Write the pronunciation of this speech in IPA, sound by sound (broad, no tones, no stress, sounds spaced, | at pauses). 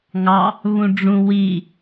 ŋ ɑ | β ũ ɖ͡ʐ ũ w i